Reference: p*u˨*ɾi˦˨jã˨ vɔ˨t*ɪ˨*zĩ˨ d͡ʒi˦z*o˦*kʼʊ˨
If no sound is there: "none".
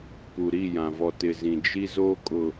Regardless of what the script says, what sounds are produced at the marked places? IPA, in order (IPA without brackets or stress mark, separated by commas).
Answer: u˨, ɪ˨, o˦